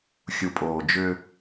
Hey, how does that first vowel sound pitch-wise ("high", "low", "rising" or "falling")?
low